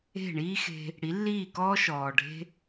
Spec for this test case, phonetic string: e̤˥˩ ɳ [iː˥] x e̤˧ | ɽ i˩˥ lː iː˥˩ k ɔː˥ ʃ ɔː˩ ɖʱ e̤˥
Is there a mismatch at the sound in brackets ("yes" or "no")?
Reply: no